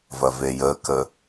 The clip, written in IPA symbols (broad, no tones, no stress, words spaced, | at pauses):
vɐvejəkə